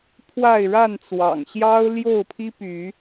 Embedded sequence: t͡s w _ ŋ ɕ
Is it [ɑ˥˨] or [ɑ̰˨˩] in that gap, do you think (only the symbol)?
ɑ̰˨˩